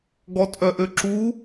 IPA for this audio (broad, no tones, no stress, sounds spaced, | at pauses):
ɡ ɔ tʼ œ ʔ ø ǁ u